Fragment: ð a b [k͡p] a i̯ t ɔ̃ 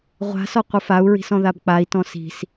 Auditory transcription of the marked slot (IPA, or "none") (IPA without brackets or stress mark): k͡p